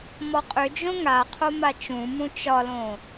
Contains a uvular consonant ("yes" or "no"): yes